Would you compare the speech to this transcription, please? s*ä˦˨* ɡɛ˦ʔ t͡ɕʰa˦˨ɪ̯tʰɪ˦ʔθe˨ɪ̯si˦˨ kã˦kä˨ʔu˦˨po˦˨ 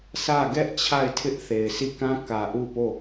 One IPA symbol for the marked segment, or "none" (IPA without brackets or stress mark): ä˦˨